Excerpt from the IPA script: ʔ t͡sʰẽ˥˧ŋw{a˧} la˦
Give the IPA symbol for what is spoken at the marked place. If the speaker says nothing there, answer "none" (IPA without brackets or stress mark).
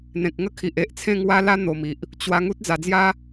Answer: a˦